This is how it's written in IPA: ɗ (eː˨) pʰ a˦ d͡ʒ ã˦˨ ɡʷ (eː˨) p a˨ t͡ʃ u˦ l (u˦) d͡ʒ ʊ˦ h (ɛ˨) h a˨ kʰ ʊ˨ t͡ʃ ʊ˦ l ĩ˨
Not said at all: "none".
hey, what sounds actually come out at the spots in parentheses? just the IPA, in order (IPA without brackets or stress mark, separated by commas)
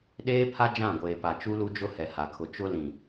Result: eː˦, eː˨, u˦, ɛ˨